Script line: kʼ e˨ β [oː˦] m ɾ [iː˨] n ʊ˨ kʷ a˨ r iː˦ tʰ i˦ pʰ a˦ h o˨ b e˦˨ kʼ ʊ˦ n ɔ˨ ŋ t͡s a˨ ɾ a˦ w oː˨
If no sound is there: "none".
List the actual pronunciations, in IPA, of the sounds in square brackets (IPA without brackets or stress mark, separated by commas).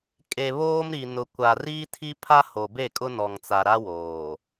oː˦, i˨